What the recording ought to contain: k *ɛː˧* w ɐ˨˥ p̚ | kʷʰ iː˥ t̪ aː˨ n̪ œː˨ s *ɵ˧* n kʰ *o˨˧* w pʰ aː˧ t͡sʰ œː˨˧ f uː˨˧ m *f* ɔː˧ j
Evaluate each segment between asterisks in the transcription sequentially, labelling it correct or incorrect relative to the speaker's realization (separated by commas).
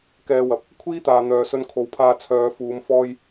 correct, correct, correct, correct